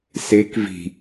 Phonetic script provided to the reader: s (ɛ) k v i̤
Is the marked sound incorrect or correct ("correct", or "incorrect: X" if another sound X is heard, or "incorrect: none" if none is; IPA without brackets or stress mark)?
incorrect: e